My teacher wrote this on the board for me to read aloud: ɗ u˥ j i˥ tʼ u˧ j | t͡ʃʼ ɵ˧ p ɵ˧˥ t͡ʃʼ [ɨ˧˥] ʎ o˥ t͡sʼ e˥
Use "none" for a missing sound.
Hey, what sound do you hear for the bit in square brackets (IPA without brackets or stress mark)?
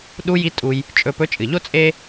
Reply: ɨ˩